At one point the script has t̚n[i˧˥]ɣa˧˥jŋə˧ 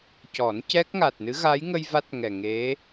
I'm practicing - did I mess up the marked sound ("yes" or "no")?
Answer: yes